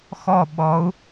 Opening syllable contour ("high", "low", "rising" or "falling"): falling